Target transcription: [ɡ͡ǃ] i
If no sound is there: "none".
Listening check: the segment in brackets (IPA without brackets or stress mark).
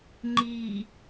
ŋ͡ǃ